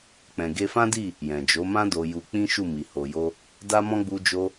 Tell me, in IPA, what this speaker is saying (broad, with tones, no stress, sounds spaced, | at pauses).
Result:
k͡p ɛ̃˨ ɡ e˧ f ã˦ d i˦˨ | j ɛ̃˨ d͡ʒ o˨˦ m ã˦ d o˧ j u˧ k͡p ĩ˦ ʃ u˦˨ m i˨ h o˨ j o˧ | d a˦ m ɔ̃˦ ɡ͡b u˧ d͡ʒ o˧